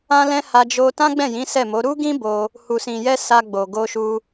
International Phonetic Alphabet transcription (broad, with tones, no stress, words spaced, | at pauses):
ã˦lɛ̃˦ ha˧d͡ʒo˧ tã˦ɡ͡bɛ̃˦˨jĩ˨˦ sɛ˦˨mo˨˦ ɾu˦ɡĩ˦bo˧ | hu˨sĩ˨jɛ˧ sa˧ɡ͡bo˨ ɡo˧ʃu˧